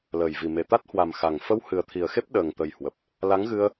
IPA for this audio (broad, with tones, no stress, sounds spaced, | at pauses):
l əː˨˩ j v i˨˩ m e˨˩ t̪ a˦˥ t̚ h w a˨˩ m x a˨˩ ŋ f ə˧ w h ɨ˨˩ ə̯ t̪ʰ i˨˩ ə̯ x e˦˥ p̚ ɗ əː˨˩ ŋ t̪ ə˨˩ j h w ə˨˩ p̚ | l a˨˦ ŋ ɣ ɨ˧ ə̯